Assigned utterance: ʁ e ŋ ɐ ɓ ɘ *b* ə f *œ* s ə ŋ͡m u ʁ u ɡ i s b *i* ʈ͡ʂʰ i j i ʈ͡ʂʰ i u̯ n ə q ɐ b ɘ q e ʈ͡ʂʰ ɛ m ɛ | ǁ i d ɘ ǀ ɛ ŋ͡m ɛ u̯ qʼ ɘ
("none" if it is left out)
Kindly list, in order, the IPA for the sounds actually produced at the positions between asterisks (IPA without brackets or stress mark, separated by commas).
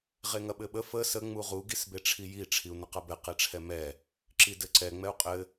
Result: ɓ, ə, e